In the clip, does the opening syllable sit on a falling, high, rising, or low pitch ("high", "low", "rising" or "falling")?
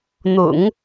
low